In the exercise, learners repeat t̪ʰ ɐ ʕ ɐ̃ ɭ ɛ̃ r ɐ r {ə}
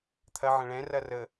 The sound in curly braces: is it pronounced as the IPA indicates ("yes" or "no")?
yes